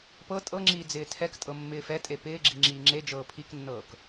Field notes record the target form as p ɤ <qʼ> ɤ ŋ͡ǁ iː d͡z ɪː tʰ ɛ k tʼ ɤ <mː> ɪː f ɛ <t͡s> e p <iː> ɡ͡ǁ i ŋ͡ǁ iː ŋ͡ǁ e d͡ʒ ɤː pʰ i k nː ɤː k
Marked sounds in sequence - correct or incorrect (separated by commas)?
incorrect, correct, incorrect, incorrect